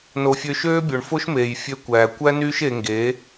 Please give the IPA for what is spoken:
n o˧ fʲ ø˦ ʃ øː˦ bʲ o˨ ɳ f o˦ ʃ m eː˨ j fʲ ø˧ kʷ æː˨ kʷ æ˦ n yː˦ ʃ e˧ ŋ ɡ eː˨˦

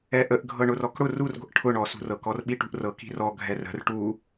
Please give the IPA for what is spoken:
ɛ ʔ ə ʔ ɡʱ ɤ ɳ ʊ r ɔ k ɽ ʊ r u r ɡʷ ə̤ ʔ ʈʰ ʊ ɳ ɔ s ṳ r ɤ k ɔ r ɓ i ʈ ṳ ʔ r ɤ k i̤ r ɔ ɡʱ ɛ r ə̤ r ʈ u

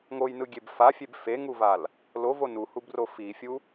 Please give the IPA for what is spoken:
ŋ o j n ɯ ɡʲ e b f a fʲ e b f e ŋ u v a l | l o v o n u h u b r o f i fʲ u

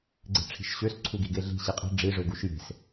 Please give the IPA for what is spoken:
ɡ͡ǀ e̤ ʈ͡ʂʰ i̤ ʃ ɕ ø s ǀʰ u ɡ i ɡ e ɮ i̤ ɕ i qʼ i̤ ɖ͡ʐ i ʐ ø ɡ u ʃ j e̤ s

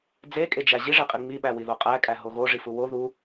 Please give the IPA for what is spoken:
d͡z e kʼ e d͡ʒ æ ʑ i ʐ e qʼ i ŋ͡m i ɓ æ w i ð o qʼ æ kʼ æ ɦ o ɣ o ʐ i f u w o ð u

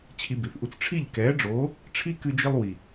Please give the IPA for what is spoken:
t͡ɕʰ i˧ b i˨ θ ʔ u˧ t͡s ʈ͡ʂʰ i˦˨ ʎ k ɛː˨˦ ɖ͡ʐ oː˨˦ | ʈ͡ʂʰ i˦ k ɨ˧ d͡ʒ i˧ lˠ w i˨

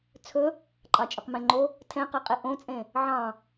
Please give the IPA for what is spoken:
t͡sʰ ɵ | ǃʼ ɑ t͡ʃʼ ɵ q m ɛ̃ ŋ͡ǃ o | tʰ ɛ̃ q ɛ qʼ e ʔ õ t͡sʼ ẽ | ʕ ɑ̃

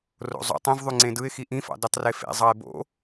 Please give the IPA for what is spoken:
r o̰ zˤ o̰ tˤ ĩ v ðˤ y ŋ͡ǀ ẽ d ɯ ɪ̯ x i ʔ ĩ f ɑ̰ d y tˤ r e f ḛ zˤ ɑ ɪ̯ b o̰

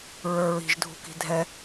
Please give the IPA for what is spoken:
ɹ ə˞ ɹ i̤ ʒ dʱ ṳ k i̤ dʱ ɛ

